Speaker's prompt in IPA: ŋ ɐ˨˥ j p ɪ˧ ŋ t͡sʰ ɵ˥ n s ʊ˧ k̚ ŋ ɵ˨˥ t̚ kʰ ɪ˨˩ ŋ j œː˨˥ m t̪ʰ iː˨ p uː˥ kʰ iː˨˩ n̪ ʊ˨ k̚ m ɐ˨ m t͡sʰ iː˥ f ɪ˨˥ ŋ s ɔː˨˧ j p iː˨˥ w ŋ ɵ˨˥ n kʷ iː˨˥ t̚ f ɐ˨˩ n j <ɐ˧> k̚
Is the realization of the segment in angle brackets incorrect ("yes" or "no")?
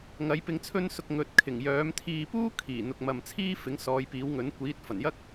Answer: yes